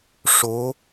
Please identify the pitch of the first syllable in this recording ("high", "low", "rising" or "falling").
rising